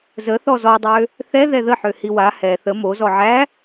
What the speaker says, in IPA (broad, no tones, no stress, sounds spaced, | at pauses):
z ə θ ɔ z ɔ dˤ ø | θ ɛ ð ɛ ð ə ħ ø h i w a h ɛ θ ə m o z ɔ ʕ æ